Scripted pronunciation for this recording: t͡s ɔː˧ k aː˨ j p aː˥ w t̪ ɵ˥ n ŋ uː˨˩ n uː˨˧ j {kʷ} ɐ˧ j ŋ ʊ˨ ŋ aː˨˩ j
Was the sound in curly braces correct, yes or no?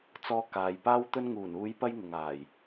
no